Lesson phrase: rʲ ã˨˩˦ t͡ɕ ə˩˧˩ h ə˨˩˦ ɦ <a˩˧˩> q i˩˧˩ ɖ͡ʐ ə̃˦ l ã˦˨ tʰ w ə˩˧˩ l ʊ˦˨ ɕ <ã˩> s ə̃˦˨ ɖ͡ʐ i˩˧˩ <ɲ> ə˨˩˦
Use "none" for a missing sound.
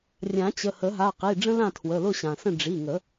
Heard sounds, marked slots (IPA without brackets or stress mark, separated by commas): a˩˧˩, ã˩, ŋ